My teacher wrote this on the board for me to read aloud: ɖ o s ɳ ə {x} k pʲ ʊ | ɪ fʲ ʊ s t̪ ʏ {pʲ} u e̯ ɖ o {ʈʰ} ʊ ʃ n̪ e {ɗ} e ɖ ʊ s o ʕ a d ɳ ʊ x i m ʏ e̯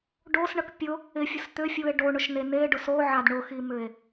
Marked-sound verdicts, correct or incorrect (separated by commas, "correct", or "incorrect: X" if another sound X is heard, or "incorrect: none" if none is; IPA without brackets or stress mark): incorrect: none, incorrect: fʲ, incorrect: ɳ, incorrect: n̪